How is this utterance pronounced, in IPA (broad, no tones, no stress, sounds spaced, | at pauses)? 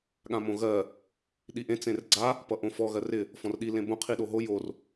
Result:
ɠ ã m õ ɣ ɜ | ɗ i ʔ ẽ t͡s ẽ r ɡ͡ǀ a | p ʌ ʔ õ f ɔ ɣ ɜ r ɪ | f ɔ̃ r ɗ i l ẽ b õ qʰ i ɗ o ɦ o j o r